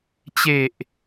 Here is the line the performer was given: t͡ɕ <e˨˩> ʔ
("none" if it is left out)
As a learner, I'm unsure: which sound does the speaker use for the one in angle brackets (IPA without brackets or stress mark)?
e˨˩